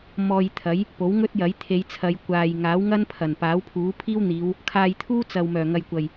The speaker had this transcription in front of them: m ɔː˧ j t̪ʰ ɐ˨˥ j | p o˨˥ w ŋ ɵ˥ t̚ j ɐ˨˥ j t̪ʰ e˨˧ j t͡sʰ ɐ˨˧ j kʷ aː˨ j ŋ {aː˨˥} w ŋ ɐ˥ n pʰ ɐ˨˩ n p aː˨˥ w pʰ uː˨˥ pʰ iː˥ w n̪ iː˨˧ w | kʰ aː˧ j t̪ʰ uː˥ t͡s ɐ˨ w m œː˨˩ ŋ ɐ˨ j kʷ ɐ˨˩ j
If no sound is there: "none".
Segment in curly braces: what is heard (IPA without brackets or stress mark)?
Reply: aː˨˥